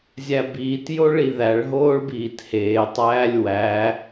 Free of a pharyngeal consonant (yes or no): yes